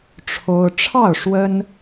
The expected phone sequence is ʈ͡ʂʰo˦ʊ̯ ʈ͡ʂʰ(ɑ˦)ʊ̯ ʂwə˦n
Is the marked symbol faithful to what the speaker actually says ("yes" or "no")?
no